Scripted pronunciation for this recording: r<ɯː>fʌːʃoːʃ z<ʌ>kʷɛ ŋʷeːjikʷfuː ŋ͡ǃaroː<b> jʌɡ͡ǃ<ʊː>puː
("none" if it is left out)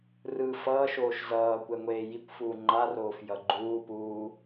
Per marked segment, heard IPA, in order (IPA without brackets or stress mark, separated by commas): ɯː, ʌː, f, uː